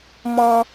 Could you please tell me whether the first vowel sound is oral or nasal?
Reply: nasal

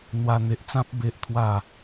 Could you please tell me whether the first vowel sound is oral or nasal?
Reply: oral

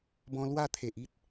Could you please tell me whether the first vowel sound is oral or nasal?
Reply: nasal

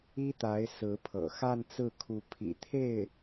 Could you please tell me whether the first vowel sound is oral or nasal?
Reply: oral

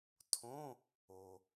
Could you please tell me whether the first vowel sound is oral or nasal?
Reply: nasal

